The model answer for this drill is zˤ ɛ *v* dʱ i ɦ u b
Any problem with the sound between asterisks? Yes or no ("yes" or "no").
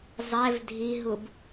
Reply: no